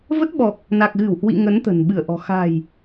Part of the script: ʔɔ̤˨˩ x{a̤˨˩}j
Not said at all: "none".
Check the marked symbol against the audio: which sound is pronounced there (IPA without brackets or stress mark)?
a̤˨˩